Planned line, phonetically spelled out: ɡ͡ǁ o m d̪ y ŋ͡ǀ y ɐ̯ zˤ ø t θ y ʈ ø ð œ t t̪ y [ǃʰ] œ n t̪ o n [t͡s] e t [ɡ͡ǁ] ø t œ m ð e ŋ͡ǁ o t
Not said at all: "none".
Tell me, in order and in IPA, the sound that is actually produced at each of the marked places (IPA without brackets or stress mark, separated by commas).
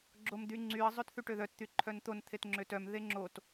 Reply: ǃʰ, t̪ʰ, ŋ͡ǁ